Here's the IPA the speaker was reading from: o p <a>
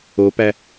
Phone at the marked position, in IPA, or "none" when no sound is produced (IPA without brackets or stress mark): æ